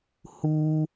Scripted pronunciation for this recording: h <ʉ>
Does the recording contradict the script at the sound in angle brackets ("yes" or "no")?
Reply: yes